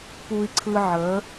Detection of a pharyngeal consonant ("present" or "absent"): present